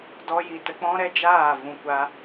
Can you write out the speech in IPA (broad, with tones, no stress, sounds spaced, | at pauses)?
d ɔ˧ j i˨ t ə˧ k͡p ɔ̃˦ ɾ ɛ˦ d͡ʒ aː˦˨ v ũ˨ kʷ a˧